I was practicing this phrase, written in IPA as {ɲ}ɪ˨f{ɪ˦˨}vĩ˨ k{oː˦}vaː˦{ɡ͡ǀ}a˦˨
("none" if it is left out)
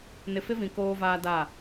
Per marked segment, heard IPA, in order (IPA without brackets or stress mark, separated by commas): n, ɪ˦, oː˦, d